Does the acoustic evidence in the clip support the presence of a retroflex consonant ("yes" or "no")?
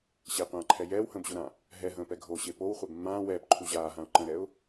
no